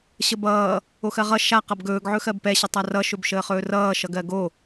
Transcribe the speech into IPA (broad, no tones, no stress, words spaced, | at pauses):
ɕəbʌː | oxɜʁʌ ʃa qʌbɡɵːɡ ʕɵxɜbpɛ ɕətˤarʌ ʃɵbʃəːχɵːrʌː ʃʌɡɜɡo